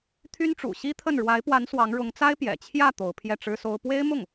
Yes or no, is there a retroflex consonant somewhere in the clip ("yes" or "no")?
yes